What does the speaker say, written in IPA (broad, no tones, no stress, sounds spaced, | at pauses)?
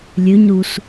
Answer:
lʲ ø ɲ ɾ u s